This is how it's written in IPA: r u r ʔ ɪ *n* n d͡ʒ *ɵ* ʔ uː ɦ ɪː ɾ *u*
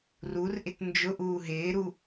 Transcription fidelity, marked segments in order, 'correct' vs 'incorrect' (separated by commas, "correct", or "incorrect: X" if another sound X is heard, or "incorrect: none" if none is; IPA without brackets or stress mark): incorrect: t, incorrect: ʊ, correct